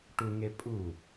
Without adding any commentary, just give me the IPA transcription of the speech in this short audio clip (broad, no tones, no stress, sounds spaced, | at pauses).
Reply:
ʈ u ŋ e pʼ u